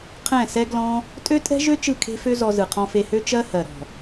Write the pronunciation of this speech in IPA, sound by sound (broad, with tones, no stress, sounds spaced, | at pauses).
qʰ ɛ̃˦˨ s ɛ˦ ɡ l ɔ̃˦ | tʼ ø˦ tʼ ɛ̤˦ ʒ ø˦ t͡ʃ ɯ˦˨ kʰ e̤˦ f ø˦ z ɔ˧ z ɯ˨ qʰ ɔ̃˧ f e˧ h ø˦ t͡ʃ ɜ˦ h ɜ˨ ɾ ɔ̤˨